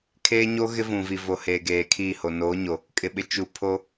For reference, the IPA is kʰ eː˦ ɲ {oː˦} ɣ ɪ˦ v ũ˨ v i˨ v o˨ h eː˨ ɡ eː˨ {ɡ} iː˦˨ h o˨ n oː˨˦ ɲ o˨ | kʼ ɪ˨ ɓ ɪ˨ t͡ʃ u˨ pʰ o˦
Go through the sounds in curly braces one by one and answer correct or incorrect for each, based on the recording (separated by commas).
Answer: incorrect, incorrect